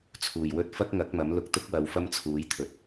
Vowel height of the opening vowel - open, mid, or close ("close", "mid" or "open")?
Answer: close